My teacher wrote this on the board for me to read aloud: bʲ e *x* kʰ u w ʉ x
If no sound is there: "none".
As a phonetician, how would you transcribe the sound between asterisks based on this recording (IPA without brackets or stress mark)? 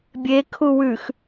none